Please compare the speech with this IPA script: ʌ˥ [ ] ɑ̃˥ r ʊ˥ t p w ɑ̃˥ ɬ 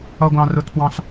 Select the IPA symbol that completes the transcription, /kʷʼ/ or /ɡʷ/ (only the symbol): ɡʷ